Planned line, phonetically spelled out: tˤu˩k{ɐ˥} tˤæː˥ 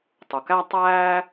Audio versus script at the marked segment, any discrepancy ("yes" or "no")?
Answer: yes